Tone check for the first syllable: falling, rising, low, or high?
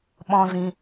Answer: high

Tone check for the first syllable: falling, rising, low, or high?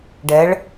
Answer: rising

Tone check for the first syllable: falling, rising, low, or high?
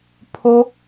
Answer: high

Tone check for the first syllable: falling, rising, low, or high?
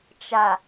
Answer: low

